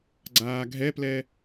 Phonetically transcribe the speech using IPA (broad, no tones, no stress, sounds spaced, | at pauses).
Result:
ɡ͡ǀ aː ɡʱ ɛ p l ɛ